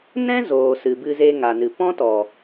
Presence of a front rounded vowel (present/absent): absent